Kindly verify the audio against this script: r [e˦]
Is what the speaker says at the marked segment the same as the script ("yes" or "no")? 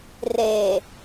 no